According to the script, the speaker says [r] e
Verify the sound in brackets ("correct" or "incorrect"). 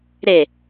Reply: incorrect